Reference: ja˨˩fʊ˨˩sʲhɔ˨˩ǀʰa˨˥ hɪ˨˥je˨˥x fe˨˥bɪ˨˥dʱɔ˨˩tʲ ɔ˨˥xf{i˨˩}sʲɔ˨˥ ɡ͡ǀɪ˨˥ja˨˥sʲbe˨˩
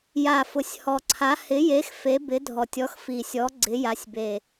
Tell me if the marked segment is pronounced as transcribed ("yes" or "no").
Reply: yes